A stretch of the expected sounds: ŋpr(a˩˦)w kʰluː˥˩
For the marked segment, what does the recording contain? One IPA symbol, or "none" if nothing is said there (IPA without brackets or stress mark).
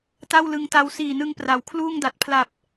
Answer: a˩˦